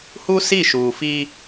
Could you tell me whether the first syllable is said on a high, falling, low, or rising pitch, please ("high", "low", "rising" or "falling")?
high